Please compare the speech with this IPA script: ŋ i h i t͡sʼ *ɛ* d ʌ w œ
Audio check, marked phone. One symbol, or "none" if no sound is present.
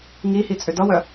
ʏ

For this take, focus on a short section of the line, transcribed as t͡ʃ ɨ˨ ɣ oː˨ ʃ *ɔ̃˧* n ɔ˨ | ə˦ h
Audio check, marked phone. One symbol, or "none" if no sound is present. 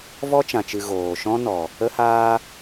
ɔ̃˦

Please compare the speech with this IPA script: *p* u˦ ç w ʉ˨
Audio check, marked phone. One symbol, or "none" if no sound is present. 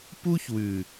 p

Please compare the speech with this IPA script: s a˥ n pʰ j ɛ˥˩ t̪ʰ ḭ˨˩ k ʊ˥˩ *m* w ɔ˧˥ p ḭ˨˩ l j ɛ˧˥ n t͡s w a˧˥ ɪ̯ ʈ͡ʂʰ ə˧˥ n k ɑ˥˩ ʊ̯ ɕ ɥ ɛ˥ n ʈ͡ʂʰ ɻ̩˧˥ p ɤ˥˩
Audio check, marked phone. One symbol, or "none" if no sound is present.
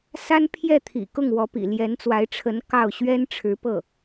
ŋ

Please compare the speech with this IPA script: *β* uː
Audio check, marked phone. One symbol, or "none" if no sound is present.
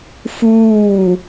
f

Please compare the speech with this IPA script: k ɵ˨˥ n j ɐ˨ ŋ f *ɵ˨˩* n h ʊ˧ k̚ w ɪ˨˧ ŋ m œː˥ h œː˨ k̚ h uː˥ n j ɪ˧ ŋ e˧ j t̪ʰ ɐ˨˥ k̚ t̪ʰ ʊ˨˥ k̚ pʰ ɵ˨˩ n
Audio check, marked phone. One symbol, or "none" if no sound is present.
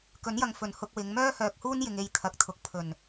ɵ˨˩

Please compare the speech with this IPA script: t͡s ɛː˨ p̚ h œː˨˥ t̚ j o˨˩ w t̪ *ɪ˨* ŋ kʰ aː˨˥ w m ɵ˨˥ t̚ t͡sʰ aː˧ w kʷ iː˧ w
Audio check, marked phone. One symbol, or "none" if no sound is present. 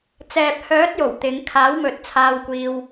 ɪ˨˧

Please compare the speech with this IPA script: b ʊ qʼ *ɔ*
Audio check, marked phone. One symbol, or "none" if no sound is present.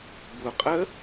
ə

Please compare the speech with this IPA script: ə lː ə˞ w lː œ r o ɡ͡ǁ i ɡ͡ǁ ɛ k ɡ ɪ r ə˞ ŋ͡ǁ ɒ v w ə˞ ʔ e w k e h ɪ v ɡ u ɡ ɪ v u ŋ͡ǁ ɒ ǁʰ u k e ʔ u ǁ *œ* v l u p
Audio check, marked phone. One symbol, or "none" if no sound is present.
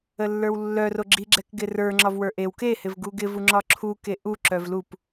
œ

